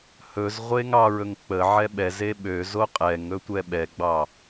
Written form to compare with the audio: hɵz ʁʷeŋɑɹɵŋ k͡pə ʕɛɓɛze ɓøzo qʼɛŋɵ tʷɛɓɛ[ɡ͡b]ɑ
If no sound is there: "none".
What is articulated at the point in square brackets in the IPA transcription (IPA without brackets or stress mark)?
ɡ͡b